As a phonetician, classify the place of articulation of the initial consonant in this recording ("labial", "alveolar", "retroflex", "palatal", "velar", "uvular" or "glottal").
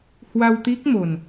glottal